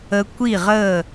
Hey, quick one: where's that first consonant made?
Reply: velum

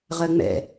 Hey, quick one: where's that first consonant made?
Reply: uvula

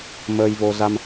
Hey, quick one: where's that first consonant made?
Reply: lips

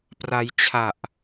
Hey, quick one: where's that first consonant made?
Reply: lips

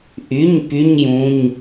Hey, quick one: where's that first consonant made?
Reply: throat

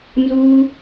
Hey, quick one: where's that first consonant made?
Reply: tongue tip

